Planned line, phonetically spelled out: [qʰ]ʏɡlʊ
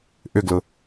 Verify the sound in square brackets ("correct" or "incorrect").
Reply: incorrect